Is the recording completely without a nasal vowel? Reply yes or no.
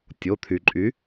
yes